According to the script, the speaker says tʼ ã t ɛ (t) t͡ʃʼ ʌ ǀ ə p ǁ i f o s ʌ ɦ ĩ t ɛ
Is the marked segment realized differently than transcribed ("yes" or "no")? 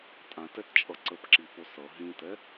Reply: no